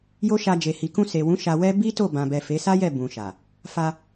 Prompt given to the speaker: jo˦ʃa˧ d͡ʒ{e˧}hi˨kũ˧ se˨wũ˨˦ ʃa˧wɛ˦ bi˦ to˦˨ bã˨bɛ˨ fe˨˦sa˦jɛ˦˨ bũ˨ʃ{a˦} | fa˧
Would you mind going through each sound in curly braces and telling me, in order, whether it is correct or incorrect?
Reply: incorrect, incorrect

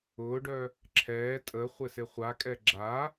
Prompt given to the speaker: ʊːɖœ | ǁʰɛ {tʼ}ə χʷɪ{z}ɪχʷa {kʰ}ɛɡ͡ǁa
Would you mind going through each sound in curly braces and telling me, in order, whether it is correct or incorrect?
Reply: correct, incorrect, incorrect

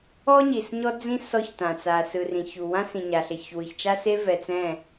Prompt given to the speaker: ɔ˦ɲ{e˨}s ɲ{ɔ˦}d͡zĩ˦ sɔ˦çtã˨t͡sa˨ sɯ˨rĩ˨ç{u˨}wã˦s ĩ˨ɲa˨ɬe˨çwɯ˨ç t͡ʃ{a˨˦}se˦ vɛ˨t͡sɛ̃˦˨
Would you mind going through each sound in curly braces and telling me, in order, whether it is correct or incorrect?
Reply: incorrect, correct, correct, incorrect

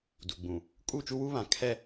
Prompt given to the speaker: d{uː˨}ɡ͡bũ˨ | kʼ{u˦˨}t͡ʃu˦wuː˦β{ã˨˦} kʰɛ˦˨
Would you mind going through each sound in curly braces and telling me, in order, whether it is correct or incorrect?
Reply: incorrect, correct, correct

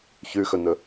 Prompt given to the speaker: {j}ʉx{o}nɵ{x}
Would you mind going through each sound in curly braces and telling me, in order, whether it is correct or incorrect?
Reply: incorrect, incorrect, incorrect

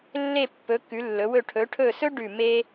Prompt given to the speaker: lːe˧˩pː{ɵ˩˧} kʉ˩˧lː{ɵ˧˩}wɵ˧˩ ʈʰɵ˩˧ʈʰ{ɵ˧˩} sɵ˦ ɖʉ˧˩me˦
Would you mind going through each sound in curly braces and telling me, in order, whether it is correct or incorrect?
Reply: correct, incorrect, correct

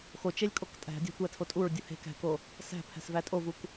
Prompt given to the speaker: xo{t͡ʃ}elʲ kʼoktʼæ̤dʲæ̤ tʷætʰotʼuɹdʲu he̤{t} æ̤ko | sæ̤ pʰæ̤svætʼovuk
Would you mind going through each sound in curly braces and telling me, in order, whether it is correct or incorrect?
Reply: correct, incorrect

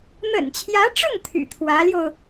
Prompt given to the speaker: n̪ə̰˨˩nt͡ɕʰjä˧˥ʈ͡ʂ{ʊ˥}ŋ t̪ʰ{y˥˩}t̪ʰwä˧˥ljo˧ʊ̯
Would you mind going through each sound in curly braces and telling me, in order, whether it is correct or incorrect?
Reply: incorrect, incorrect

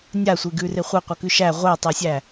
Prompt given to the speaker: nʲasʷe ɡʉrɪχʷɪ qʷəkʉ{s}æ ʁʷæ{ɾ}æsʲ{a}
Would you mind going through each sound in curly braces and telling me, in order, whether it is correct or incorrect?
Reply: incorrect, incorrect, incorrect

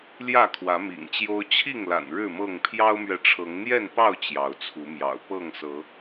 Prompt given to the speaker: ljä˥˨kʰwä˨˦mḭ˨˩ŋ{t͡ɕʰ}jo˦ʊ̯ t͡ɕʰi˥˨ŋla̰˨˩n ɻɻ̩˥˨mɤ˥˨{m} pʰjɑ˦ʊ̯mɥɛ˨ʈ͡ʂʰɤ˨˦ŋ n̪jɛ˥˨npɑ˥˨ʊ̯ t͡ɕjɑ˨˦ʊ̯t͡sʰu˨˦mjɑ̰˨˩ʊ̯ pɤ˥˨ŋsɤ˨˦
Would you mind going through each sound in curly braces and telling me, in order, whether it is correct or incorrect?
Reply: incorrect, incorrect

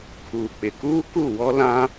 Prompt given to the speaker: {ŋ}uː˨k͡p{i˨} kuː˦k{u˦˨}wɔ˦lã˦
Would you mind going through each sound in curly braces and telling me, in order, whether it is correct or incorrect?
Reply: incorrect, incorrect, correct

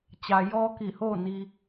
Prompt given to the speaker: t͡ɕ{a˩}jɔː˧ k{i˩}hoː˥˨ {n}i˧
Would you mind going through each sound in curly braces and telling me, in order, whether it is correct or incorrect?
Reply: correct, incorrect, correct

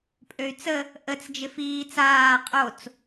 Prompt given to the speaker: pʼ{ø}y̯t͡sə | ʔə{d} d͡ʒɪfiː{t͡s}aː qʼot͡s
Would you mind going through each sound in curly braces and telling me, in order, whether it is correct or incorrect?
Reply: correct, incorrect, correct

